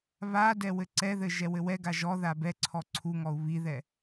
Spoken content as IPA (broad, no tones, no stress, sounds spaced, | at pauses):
β a d ɛ w ɘ ǀ ɛ ð ɘ ʒ ɛ w ɘ w ɛ ɡ a ʒ ɔ ð a b ɛ ǀʰ ɔ ǀʰ u ŋ ɔ u̯ β i ð ɛ